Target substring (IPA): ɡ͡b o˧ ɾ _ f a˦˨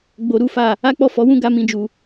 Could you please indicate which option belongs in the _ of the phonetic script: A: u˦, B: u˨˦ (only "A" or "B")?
A